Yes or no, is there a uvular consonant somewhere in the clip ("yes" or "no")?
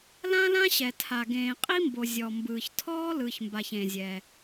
yes